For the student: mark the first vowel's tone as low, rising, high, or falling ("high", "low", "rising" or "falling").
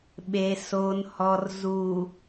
low